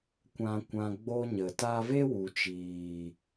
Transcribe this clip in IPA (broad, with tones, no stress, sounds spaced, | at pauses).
kʷ ã˧ kʷ ã˧ ɡ͡b o˦ ɲ ə˨ t a˧ v e˦ w u˨ t͡ʃ iː˨